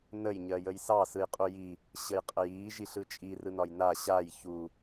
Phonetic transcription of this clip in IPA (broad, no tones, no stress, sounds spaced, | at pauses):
n ə j ɲ ɜ j ə j s ɑ s ɯ j qʼ u j i | ɕ ə j qʼ ə j iː ʒ i ɬ ɯ t͡ʃʼ i r ɯ n ɒ j n a ɕ a j ç u